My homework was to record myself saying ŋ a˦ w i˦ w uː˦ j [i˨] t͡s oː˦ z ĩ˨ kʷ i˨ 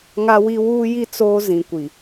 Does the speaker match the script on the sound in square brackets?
no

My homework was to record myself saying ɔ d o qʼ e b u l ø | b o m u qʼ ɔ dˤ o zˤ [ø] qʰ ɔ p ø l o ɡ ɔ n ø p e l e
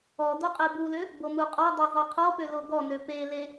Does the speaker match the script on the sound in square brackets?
no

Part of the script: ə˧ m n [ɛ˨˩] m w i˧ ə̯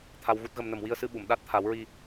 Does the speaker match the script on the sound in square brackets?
no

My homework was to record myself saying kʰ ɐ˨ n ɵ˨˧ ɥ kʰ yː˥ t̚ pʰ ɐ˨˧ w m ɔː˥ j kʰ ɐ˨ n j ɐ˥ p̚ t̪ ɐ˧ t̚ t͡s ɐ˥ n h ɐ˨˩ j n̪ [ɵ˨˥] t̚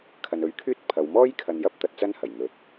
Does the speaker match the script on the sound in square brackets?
yes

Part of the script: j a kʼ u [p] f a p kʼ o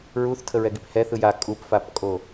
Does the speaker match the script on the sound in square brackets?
yes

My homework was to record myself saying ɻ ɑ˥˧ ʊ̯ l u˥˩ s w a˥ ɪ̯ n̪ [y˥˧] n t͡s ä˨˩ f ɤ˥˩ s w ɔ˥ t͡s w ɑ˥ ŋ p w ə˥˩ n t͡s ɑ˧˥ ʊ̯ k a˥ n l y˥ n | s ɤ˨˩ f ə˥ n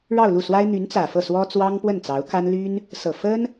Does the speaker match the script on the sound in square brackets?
no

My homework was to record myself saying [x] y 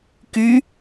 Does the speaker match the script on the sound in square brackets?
no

